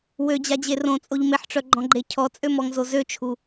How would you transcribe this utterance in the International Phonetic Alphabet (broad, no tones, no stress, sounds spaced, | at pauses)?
w ø d͡ʑ a d͡ʑ e r õ t͡sʼ o ʎ m e ħ ʈ͡ʂ œ ɡ͡ǃ ɔ̃ ɡ͡ǃ e cʰ ɔ t͡sʼ ø m ɔ ŋ z o z ø t͡ʃʰ u